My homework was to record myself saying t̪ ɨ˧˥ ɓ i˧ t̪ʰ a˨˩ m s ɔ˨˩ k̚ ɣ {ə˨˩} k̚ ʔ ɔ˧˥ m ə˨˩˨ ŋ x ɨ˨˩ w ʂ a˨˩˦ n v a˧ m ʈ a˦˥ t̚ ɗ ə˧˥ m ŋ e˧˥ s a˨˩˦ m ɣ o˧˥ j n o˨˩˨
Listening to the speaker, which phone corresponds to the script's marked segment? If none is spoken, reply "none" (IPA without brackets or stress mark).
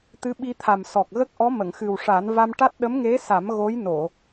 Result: ə˦˥